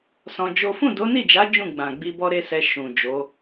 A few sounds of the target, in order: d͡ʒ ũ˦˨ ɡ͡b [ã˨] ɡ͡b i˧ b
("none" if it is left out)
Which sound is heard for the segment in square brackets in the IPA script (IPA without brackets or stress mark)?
ã˨